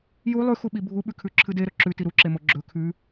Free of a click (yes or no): no